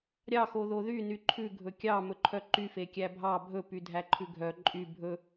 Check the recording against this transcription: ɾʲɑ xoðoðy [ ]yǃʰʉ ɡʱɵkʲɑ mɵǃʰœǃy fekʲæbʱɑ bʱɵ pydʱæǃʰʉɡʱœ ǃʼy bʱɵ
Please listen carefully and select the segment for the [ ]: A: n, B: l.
A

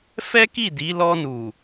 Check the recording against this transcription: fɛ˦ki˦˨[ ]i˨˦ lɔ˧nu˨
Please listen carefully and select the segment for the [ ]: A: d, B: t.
A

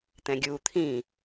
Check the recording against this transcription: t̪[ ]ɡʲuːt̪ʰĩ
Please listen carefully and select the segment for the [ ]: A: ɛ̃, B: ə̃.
A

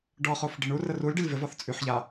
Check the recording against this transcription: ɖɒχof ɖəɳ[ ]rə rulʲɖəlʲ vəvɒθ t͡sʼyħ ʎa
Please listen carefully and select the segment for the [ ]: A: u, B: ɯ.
A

